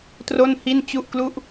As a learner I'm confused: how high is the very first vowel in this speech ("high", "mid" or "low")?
mid